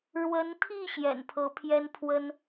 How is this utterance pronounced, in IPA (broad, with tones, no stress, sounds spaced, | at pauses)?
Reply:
ɻ w ə˧˥ n t̪ʰ i˥˩ ɕ j ɛ̰˨˩ n pʰ ɤ˧˥ pʰ j ɛ˥ n pʰ w ə˥ n